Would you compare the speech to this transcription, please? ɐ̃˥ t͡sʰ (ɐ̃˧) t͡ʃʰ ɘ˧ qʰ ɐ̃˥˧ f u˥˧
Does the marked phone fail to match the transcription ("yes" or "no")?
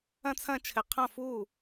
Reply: yes